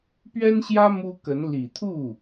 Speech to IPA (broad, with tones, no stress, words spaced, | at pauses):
pɥɛ˥nɕjä˥ mu˥kə˧˥n li˨˩t̪ʰu˥˩